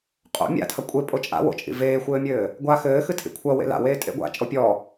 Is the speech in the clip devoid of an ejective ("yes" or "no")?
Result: no